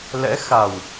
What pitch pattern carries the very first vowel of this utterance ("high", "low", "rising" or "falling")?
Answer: rising